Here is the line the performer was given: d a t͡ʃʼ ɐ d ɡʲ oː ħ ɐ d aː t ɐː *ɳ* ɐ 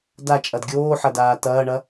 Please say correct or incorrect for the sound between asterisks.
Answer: correct